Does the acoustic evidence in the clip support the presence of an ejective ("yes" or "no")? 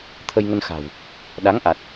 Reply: no